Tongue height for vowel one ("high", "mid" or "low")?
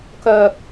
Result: mid